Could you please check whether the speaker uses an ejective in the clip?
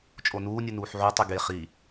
yes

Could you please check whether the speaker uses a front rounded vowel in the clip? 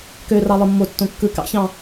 yes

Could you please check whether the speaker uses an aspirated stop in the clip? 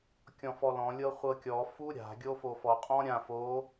no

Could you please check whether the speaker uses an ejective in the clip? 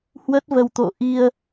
no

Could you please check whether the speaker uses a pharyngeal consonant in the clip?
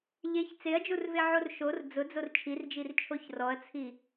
yes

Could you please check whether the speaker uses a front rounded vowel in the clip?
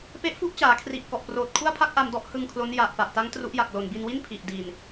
no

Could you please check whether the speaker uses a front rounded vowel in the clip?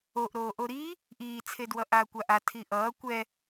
no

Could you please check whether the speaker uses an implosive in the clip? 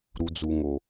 no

